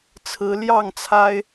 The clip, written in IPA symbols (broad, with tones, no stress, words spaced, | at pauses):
t͡sʰɹ̩˨˦ljɑ˥˨ŋ t͡sʰa˦ɪ̯